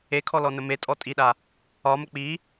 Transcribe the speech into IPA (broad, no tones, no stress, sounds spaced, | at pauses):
e kʰ ɔ l ɔ n ə m e tʼ ɔ tʼ i ɗ a | ɒ m ə k͡p i